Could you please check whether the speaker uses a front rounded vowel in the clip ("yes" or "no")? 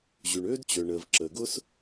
yes